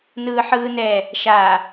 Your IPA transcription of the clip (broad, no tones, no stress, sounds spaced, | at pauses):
n ɯː ħ ɯː n ɛ | ʃ a